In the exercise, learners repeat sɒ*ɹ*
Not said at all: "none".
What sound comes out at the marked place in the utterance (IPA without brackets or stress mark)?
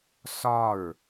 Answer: ɹ